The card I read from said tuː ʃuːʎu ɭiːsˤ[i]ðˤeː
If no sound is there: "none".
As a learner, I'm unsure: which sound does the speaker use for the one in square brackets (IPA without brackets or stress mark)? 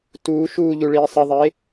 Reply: i